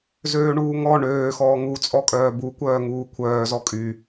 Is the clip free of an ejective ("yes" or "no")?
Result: no